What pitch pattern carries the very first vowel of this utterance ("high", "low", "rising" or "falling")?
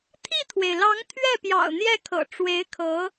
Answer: falling